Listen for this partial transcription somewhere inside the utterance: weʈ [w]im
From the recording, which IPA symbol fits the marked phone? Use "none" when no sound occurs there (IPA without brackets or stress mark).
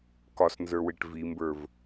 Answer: v